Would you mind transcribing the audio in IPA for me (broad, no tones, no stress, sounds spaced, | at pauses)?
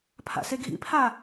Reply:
pʰ a̰ s e ɡʱ ḭ pʰ a